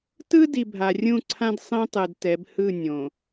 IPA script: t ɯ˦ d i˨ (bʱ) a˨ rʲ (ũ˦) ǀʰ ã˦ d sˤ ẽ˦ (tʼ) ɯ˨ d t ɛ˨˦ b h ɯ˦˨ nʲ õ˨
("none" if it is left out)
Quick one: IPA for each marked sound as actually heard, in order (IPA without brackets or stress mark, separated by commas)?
bʱ, ũ˦˨, tˤ